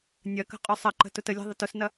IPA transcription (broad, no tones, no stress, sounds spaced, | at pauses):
nʲ ɐ k ə̤ qʼ ʊ sˤ ɐ ǃ ə̤ t ʊ t ə lʲ ɛ̤ ðˤ ɐ t ʊ s n ɐ